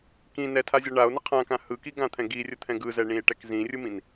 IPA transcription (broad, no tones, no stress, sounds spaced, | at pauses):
k ĩ n ɛ tʰ a zʲ ʌ ɳ a o̯ n ə qʰ ã k ã h ɯ k i ɡ ã t̪ʰ ɛ̃ ɡ i rʲ ə t̪ʰ ɛ̃ ɡ ɯ z ɛ ɳ ĩ e̯ ʈ ɛ k z ĩ rʲ ɯ m ĩ n